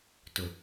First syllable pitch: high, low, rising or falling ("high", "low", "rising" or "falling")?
low